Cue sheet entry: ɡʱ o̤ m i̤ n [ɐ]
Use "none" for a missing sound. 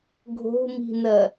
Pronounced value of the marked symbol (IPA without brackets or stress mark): ɐ